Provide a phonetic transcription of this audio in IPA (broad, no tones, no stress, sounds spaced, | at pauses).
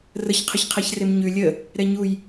r ə ç qʰ ə ç qʰ ɛ ç r e m ɲ ʉ lʲ ə | ɾ ɛ ɲ u j